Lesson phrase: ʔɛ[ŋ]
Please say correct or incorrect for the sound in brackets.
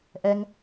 correct